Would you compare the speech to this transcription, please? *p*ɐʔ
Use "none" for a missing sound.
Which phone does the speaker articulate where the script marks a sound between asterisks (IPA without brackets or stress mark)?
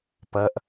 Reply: p